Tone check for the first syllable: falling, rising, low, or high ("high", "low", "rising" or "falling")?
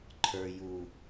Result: low